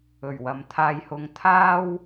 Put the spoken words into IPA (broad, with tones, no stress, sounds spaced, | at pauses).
ɵ˨˩ ɥ w ɐ˨ m t̪ʰ aː˧ j h ʊ˧ ŋ t̪ʰ aː˥ w